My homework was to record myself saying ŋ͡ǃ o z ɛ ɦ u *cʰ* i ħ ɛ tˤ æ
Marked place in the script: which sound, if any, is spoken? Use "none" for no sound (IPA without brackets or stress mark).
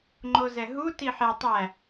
t